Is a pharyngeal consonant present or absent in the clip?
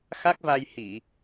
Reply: absent